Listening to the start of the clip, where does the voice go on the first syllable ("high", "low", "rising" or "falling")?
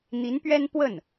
rising